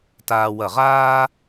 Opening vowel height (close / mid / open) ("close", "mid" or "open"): open